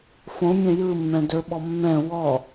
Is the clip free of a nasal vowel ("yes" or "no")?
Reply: no